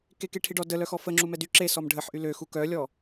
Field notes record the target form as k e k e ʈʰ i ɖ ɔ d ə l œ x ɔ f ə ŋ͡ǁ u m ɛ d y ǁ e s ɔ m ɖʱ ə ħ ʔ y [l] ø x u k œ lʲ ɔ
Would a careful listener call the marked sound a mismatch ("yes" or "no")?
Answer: no